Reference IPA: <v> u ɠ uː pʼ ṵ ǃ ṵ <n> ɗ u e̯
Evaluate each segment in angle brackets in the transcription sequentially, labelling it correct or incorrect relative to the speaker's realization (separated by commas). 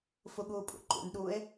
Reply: incorrect, correct